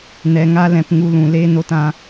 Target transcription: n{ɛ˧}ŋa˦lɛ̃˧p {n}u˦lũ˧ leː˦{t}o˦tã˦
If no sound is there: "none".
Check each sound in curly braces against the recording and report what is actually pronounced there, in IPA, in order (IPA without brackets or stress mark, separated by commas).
ɛ˧, ŋ, n